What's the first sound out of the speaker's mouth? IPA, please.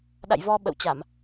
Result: ɗ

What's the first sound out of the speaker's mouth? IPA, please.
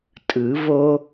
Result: tʼ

